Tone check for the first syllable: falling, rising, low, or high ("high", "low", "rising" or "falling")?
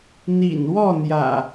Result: low